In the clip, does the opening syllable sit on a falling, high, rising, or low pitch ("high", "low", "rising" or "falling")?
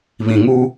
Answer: low